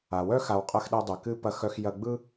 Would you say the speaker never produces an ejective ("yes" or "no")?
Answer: no